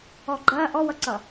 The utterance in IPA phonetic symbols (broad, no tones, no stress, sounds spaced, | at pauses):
ɔ ɡ͡ǃ ɐː ʔ ɔ w ʌ ǀ ʌ